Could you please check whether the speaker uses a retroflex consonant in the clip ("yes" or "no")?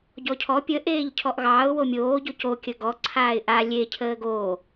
no